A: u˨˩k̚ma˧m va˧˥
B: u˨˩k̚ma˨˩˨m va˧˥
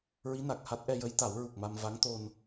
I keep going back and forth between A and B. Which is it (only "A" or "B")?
A